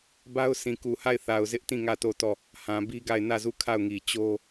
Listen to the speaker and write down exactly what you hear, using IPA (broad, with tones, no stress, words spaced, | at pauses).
ba˦ʊ̯sĩ˨ku˨ha˦˨ɪ̯ θa˨ʊ̯zɪ˦ʔtĩ˦˨ ŋä˦˨to˦˨tɔ˦˨ | hã˨bi˦ɡa˦˨ɪ̯ nä˦˨zu˦˨ kʰa˦˨ʊ̯ŋi˨ t͡ɕo˦